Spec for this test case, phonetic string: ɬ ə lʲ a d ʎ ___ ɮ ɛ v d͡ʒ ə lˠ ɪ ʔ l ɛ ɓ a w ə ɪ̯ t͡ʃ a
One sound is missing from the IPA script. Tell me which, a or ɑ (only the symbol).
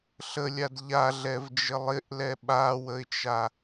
a